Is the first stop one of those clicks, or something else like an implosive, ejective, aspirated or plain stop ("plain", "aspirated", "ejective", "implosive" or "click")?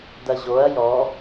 plain